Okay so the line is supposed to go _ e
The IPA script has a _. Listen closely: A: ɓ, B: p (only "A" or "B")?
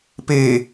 B